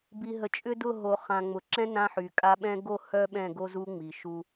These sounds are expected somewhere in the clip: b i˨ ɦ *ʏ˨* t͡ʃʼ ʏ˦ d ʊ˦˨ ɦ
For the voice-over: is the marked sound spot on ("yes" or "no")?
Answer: no